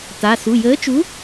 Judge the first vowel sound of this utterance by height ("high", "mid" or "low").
low